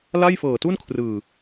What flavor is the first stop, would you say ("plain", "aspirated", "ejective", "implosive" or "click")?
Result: plain